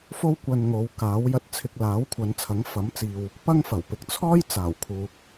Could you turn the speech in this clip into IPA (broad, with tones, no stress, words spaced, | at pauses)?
fo˥wkʷɐ˧n ŋo˨˧wkaː˨˥w jɐ˧t̚t͡sʰɪ˧k̚ laː˨˥wkʷʰɐ˨˧nt͡sʰɐ˨˥ŋ fɐ˨˥mt͡siː˨w | pɐ˥ŋfɐ˨˩wpɪ˧k̚ t͡sʰɔː˥jt͡saː˨˩wkʰuː˨k̚